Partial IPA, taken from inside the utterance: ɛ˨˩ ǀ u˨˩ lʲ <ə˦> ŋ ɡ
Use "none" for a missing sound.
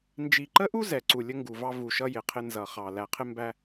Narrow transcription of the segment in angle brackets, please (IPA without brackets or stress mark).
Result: ə˦